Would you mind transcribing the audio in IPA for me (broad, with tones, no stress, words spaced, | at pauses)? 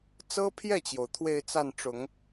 t͡sɤ˥pʰjɛ˥˩t͡ɕjo˩ʊ̯ t̪ʰwe˥˧ɪ̯t͡sa˥˩nʈ͡ʂʊ˨˩˦ŋ